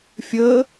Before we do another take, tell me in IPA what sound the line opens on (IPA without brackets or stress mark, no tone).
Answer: fʲ